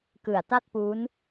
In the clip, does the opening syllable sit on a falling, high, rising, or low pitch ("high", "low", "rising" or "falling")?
low